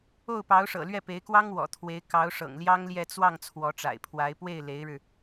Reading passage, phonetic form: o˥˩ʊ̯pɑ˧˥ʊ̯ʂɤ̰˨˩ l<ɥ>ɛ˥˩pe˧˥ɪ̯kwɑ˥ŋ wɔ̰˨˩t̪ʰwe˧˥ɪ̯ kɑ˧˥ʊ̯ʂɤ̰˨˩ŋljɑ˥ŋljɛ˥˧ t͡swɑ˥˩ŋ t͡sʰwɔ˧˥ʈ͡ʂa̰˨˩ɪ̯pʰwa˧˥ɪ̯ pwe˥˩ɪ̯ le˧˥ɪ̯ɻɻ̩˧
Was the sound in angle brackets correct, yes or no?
yes